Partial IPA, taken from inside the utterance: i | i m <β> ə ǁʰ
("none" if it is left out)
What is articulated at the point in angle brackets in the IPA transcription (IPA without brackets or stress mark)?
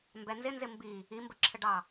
b